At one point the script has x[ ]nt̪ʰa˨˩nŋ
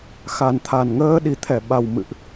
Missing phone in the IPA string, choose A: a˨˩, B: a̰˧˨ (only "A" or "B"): A